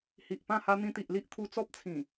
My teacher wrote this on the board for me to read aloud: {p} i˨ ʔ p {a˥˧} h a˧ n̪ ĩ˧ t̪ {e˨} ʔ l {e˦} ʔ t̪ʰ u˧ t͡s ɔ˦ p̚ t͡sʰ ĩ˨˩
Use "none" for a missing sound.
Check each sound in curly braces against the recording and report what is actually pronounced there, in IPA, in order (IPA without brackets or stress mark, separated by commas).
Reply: h, ã˥˧, i˨, i˦